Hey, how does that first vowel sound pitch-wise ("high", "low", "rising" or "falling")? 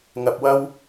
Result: low